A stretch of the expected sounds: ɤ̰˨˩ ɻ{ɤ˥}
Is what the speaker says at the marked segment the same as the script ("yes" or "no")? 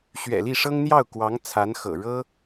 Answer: yes